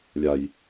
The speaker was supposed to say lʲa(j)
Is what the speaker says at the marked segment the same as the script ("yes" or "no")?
yes